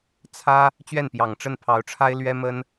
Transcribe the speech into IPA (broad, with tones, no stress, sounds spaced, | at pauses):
t͡sʰ ä˥ | t͡ɕ ɥ ɛ˥˩ n p j ɑ˨˩ ŋ ʈ͡ʂ ə˥˩ n pʰ ɑ˧˥ ʊ̯ ʈ͡ʂʰ a˥ ɪ̯ l ɥ ɛ˥ m ə˥ n